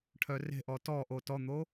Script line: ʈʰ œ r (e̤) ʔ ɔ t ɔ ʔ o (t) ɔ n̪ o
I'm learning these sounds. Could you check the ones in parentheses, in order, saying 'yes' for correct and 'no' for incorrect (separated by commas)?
yes, yes